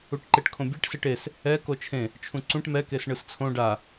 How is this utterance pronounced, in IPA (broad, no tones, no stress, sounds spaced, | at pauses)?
u ʈ ǃ e ʈ kʰ õ bʲ e ʈ s e ʈ e s | ɛ k o t͡ʃʰ ẽ | t͡ʃʰ ũ ǀ ũ ʈ m ɛ k e s ɳ ɯ s t͡sʰ õ ɖ a